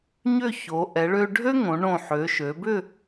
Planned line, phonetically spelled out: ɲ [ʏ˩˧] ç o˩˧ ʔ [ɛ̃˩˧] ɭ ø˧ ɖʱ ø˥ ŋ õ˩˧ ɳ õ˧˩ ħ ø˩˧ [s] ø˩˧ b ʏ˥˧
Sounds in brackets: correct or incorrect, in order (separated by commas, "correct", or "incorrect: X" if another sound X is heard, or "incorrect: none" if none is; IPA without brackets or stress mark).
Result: incorrect: ʏ˥˧, incorrect: ɛ˩˧, incorrect: ʃ